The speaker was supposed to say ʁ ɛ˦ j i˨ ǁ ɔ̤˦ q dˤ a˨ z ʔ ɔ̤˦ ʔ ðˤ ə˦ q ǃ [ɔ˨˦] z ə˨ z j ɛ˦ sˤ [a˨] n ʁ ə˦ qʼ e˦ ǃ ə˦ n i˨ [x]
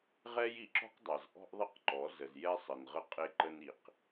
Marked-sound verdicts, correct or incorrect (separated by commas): correct, incorrect, incorrect